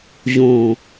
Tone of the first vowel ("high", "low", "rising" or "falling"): low